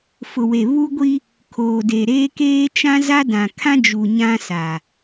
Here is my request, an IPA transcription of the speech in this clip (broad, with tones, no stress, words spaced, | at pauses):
fʊ˨we˨ βu˦ɡʷi˦ | kʰoː˨de˨ ɾeː˦keː˦ t͡ʃã˦za˦ dã˨kʰã˦d͡ʒu˨ ɲã˦sa˨